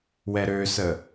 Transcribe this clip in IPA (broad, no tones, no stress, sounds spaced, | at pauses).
w ɛ ɾ ø s ə